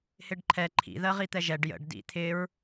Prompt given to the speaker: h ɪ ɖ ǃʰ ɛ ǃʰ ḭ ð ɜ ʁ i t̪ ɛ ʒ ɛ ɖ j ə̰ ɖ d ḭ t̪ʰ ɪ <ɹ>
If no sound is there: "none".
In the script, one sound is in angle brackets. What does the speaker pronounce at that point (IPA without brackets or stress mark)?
ɹ